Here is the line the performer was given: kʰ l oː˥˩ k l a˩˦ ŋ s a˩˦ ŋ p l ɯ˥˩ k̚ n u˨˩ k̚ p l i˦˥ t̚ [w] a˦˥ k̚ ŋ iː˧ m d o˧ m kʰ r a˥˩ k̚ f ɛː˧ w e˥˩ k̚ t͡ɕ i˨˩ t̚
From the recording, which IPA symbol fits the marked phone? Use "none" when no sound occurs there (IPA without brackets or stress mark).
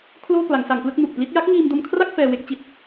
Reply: j